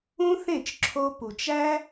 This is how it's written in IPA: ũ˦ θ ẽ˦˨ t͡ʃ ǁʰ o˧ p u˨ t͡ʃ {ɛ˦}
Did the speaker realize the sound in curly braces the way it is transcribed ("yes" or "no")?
no